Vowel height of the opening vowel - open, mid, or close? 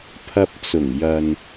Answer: open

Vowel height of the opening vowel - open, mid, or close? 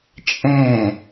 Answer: mid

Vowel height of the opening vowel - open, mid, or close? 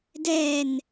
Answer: mid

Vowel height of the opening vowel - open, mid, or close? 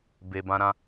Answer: mid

